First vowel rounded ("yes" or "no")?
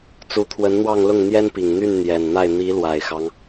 yes